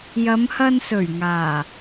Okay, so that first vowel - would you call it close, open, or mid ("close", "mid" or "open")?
open